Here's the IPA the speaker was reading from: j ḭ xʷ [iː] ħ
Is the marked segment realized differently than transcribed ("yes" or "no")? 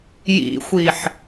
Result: no